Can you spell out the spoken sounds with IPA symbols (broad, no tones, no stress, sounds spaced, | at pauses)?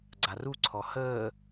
ɡ͡ǀ a r u ǀʰ ɔ h əː